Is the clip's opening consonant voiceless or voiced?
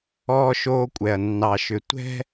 voiceless